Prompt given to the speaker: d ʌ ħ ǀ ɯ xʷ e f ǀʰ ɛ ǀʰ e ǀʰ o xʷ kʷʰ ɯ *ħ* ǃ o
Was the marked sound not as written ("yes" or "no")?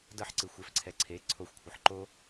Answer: no